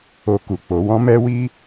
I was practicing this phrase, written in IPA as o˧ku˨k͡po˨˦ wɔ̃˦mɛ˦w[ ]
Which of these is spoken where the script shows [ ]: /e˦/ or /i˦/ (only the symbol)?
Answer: i˦